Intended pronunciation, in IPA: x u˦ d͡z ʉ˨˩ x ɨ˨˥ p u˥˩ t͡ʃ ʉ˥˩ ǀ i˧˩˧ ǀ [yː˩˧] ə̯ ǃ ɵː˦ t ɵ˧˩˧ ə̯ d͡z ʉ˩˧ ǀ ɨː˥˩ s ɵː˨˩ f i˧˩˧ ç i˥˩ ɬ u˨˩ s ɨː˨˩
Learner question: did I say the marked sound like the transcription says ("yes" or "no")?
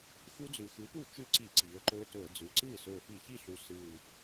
no